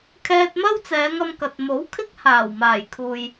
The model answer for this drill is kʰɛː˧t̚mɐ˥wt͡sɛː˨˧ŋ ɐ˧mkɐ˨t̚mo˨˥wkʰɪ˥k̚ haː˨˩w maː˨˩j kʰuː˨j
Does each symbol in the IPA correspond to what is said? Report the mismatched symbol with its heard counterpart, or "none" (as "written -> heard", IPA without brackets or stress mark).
none